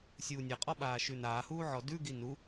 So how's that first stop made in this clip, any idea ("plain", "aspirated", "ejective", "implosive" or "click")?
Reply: ejective